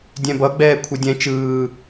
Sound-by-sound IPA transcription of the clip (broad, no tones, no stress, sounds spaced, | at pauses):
dʲ ɛ̃ b ʌ ɡ͡b ɛː kʷʰ ʌ dʲ ɛ̃ t͡ʃ ɯː